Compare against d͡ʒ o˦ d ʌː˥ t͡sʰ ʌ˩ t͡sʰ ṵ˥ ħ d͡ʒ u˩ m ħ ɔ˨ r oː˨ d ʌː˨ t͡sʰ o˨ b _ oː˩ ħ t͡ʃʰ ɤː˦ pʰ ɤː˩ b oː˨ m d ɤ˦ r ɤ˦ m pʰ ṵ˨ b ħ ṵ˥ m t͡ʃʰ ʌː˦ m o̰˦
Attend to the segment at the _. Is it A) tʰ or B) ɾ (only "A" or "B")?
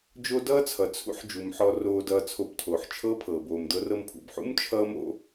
A